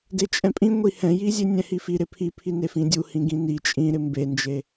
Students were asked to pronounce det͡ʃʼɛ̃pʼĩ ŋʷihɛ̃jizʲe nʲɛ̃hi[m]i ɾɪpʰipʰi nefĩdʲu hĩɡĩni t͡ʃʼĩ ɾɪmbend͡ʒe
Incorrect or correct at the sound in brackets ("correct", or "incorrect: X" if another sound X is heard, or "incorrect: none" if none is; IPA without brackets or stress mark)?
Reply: incorrect: f